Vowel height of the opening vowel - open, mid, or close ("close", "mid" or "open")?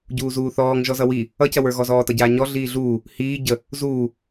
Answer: close